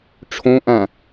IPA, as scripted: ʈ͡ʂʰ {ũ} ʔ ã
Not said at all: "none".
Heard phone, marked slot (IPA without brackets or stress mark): õ